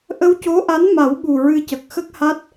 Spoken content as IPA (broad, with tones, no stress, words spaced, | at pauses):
ʔə˧wco˧˥ʔa˧˥n ma˨˩˦w ɓu˨˩ɹɨ˧ cə˨˩k̚xə˦˥k̚ha˦˥t̚